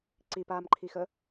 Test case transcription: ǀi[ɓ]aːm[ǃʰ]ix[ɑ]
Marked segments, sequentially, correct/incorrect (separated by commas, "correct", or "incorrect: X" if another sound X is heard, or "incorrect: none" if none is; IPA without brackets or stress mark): incorrect: p, correct, incorrect: ə